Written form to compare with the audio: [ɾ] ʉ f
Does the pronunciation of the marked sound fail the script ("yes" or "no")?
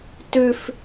yes